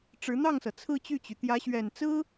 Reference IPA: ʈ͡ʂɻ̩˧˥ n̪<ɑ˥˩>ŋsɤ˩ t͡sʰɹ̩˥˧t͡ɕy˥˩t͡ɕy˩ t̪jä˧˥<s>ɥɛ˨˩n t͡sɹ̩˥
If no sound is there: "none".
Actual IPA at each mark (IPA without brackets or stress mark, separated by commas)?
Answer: ɑ˥˩, ɕ